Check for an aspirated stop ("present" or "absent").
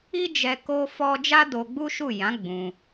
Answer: absent